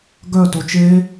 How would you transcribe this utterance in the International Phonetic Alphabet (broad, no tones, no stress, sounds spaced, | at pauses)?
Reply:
ɡ œ t o t͡ʃ e